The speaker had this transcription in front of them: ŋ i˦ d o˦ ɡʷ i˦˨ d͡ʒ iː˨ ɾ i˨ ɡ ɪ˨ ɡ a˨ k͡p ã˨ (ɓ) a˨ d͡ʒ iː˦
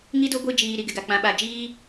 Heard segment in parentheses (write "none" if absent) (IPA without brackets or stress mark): ɓ